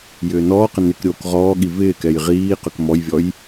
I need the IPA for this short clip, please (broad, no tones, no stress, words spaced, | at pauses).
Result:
jʏːnɔːqɪ nɪk ɾʲoːkʁɔːɠi vɪːkɛj ʁiːqʏk mɔjvʲɔj